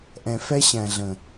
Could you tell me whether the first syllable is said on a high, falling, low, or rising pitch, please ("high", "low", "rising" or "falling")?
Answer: low